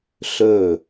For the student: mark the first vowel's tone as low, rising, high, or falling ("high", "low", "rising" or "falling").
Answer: falling